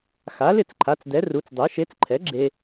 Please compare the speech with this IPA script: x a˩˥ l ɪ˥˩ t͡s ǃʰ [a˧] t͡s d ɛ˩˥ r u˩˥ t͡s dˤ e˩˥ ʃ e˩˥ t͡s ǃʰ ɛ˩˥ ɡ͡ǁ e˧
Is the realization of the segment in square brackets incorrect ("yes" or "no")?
yes